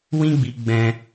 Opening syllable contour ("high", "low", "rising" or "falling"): high